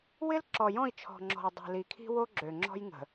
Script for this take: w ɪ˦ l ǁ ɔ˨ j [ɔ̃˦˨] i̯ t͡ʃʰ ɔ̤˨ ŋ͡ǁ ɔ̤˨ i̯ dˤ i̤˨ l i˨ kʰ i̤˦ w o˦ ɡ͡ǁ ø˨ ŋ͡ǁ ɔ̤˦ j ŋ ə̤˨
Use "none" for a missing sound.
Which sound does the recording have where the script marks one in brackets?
ɔ̃˦˨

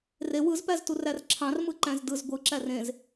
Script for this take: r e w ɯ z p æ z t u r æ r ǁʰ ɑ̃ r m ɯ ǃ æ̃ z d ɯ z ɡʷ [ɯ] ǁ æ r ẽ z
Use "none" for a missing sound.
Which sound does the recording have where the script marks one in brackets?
ɯ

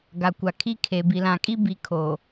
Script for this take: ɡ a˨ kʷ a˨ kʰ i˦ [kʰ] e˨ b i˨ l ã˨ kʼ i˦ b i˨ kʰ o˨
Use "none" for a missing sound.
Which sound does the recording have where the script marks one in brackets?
kʰ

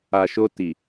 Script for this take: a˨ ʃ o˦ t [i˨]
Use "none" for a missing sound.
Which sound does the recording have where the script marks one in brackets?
i˨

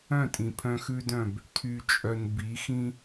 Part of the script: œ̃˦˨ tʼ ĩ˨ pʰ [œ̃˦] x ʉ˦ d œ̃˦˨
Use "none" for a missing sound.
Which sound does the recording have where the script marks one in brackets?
œ̃˦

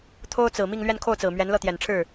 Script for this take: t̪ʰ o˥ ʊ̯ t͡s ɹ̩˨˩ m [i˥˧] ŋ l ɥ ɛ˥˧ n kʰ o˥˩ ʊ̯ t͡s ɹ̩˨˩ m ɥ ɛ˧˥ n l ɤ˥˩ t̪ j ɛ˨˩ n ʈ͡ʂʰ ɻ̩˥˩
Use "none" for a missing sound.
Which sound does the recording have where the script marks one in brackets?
i˥˧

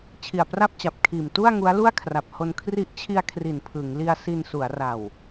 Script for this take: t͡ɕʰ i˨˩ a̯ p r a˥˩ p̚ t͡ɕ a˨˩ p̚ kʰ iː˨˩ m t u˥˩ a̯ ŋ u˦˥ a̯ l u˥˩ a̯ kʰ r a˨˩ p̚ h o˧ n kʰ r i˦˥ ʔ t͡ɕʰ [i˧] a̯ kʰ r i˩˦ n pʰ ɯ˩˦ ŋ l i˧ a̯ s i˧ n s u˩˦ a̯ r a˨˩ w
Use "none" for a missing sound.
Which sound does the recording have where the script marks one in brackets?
i˧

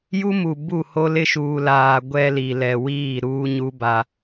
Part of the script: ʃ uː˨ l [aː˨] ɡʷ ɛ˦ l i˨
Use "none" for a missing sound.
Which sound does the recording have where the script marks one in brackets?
aː˨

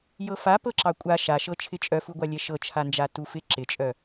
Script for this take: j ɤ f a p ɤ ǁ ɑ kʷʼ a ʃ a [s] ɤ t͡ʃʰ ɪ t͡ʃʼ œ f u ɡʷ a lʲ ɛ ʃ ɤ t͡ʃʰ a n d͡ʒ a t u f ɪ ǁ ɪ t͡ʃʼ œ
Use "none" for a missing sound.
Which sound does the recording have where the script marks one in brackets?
ʃ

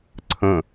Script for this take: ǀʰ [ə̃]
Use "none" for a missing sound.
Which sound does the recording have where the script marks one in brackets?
ə̃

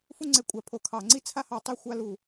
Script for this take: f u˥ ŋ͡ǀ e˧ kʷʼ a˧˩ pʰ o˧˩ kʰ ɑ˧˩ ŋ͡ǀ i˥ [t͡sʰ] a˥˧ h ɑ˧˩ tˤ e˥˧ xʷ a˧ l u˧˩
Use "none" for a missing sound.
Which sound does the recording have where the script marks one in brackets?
t͡sʰ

